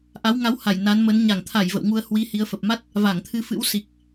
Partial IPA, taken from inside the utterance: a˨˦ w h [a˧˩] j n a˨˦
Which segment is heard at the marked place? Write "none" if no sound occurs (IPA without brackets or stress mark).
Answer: a˧˩